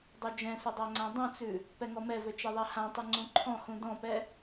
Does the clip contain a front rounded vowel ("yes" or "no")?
yes